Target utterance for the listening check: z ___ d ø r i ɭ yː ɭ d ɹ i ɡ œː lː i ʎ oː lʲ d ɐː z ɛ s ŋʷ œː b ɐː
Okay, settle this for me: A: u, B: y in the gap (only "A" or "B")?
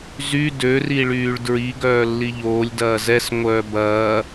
B